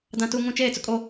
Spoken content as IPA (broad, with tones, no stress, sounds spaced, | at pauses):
d ã˨ t u˨ ŋ ũ˨ t͡ʃ eː˦˨ t͡s ʊ˦ kʼ o˦